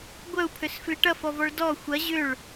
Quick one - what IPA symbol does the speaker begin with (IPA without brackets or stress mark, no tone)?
ɡʷ